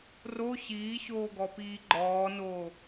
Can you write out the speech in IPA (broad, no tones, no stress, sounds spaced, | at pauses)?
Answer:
r o ɕ iː ɕ oː ɡ ɔ p iː ɡ͡ǃ ɔː n oː